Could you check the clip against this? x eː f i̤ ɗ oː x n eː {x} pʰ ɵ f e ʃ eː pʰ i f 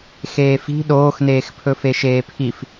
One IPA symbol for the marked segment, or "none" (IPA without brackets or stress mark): x